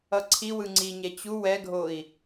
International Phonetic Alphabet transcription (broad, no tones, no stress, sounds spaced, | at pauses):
ʌ ǀʰ i w ɯ ŋ͡ǀ i ɲ ɛ t͡ɕ u w ɛ ɡʱ o i̯